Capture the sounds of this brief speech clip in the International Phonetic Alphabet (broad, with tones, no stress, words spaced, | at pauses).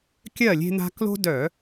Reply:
kʲɜ˥˨lʲe̤˦n̪a̤˦ klo̤˦dœ˧˩˧